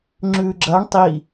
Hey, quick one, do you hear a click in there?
yes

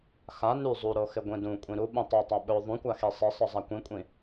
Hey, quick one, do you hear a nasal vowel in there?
yes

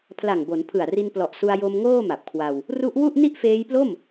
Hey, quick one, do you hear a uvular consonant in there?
no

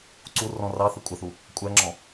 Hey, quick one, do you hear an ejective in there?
yes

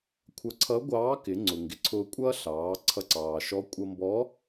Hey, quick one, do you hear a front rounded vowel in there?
no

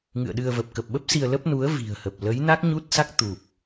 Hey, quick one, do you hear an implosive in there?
yes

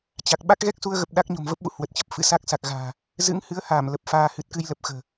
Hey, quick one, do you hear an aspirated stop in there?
no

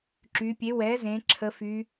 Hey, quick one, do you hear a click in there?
yes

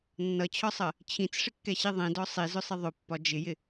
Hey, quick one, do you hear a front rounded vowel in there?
no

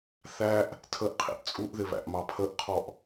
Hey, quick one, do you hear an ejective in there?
yes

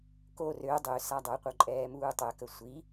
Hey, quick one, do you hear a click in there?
yes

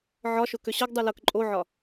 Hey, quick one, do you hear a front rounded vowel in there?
yes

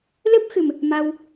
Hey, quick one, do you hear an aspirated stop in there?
no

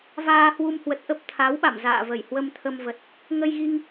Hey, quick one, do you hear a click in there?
no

